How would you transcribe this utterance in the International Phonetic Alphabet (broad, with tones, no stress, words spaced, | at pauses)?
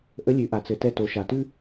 ʔə˧˥lʲʉ˩˧ʔa˩ t͡sɘ˩˧tɛ˧ to˩˧ʃa˩tʉ˥